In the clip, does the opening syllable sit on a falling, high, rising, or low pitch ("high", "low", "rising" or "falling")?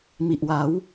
low